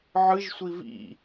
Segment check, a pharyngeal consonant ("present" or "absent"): present